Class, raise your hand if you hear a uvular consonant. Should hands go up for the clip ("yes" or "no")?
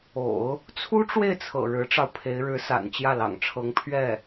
no